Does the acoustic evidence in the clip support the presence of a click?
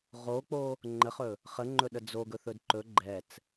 yes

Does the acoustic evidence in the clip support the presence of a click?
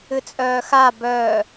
no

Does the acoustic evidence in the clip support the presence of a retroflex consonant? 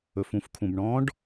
yes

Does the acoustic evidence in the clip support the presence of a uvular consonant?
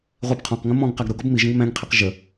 yes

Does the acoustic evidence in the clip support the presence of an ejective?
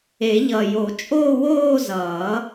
yes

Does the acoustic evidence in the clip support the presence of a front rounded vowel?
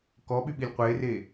yes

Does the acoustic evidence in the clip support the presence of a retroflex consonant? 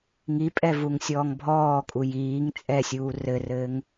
no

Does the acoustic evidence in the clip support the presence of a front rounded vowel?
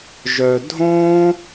yes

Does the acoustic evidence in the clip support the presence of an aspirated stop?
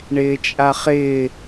no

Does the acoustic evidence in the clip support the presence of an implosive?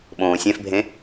yes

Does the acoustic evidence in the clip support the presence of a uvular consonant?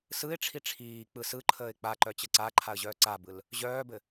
no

